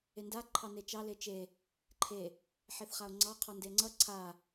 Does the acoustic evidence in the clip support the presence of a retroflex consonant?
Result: no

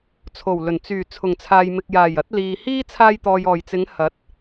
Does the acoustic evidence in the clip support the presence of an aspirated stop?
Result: yes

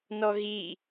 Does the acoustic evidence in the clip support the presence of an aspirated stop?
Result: no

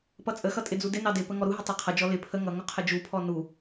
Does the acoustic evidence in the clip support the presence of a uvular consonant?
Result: yes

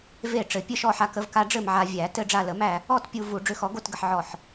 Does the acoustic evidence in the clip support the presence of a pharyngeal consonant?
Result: yes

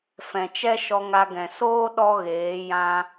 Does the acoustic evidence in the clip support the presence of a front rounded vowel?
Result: no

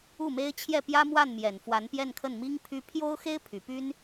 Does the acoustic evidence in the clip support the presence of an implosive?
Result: no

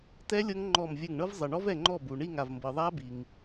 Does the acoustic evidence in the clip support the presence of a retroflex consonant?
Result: yes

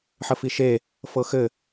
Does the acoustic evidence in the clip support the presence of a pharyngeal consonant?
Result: yes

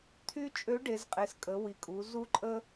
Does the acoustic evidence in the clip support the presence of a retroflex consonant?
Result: yes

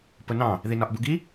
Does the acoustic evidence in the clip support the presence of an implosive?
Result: no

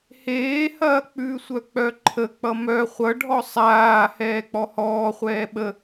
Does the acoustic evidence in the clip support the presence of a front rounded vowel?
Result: yes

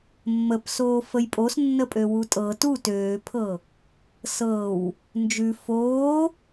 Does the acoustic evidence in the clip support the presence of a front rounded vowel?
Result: yes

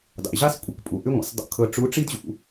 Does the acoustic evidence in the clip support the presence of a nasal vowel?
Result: no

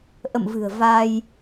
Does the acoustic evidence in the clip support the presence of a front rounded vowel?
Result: no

